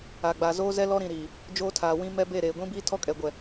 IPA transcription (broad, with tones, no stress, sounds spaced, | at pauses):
a˨ ɡ͡b a˨ z oː˦ z ɛ˦ l ɔ˦ ɾ ĩ˨ ɾ iː˨ | d͡ʒ oː˦ tʰ aː˨ w ĩ˦ m ɛ˦ b e˦˨ ɾ eː˨ ɡʷ ĩ˦ b iː˦ tʰ ɔ˦ kʼ ɛ˨ ɡʷ ɛ˨